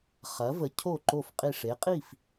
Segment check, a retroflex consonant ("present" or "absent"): present